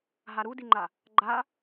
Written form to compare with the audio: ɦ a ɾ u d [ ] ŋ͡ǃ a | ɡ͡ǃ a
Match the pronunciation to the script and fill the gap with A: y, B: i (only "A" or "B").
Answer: B